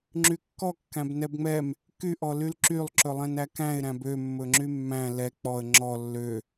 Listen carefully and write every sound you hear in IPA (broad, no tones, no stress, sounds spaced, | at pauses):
ŋ͡ǁ y kː ɔ kː æ̃ b n ɛ b ŋ͡m ɛ m | k y ʔ ɔ l y l ǁ y lˠ ǁ ɵ lˠ ɛ̃ n æ k æ̃ ɪ̯ ɾ æ̃ b ø mː ɵ ŋ͡ǁ y mː æ̃ l ɛ k͡p ɔ ə̯ ŋ͡ǁ ɔ lː ø